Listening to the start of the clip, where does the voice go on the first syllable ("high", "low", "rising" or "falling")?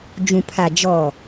low